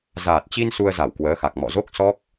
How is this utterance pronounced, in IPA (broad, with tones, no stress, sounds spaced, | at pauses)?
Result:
z aː˨˩ t̚ t͡ɕ i˧ n s u˧ ə̯ z a˧˩ w k w əː˨˦ x a˨˩ k̚ m ɔ̰˧˨ z o˦˥ k̚ s ɔ˦˥ k̚